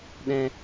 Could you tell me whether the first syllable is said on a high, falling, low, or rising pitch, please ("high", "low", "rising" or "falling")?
high